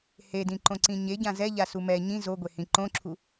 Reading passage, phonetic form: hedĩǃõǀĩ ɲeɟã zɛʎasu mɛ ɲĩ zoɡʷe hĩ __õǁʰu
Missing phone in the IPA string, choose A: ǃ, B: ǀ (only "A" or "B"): A